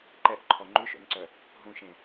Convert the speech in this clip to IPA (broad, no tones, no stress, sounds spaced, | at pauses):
ǃ ɛ ʔ ǃʰ ɔ ŋ͡ǃ ʉ ʃ o̰ n ǀ œ | ɦ ũ ʃ ẽ